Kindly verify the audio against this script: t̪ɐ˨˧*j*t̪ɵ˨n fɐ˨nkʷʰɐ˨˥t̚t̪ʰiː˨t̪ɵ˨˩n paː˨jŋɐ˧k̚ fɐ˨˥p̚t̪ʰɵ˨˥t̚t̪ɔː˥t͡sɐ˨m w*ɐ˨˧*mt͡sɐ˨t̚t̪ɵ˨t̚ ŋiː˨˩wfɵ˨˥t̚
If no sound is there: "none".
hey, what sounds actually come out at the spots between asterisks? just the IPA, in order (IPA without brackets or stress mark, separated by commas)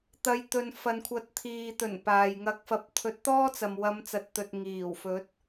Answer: j, ɐ˨˧